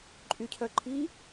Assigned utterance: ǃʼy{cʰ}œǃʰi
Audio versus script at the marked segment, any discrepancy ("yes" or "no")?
no